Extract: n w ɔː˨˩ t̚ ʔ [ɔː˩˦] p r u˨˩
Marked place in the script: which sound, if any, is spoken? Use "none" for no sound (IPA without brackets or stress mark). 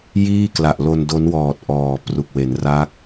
ɔː˨˩